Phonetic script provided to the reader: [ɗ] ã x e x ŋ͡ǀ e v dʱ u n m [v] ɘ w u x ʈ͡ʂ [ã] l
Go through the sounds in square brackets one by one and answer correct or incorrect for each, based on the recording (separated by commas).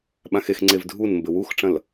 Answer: incorrect, incorrect, incorrect